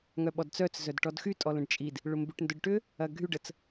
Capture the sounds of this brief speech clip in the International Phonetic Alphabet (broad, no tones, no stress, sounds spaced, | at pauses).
ŋ œ ɓ ɔ d t͡s œ t͡s z œ d ʈ ɔ d x y tʼ ɔ l ə̃ ɖ t͡ʃʼ i d | ɭ ʊ m b y ʈ n d ʊ ɖ ʈ ʏ | ɐ ɡʱ y ɖ ə t͡s